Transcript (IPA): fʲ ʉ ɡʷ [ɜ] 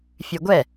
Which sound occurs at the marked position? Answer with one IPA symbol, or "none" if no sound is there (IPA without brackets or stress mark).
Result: ɛ